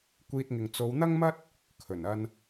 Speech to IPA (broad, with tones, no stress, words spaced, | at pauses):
kʷiː˧t̚ŋɪ˨ŋ t͡so˨˧wn̪ɐ˥ŋmɐ˥t̚ | kʰɵ˨˩nɐ˧n